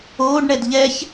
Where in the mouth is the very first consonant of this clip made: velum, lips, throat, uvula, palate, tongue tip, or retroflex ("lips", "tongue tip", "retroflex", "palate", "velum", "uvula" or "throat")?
retroflex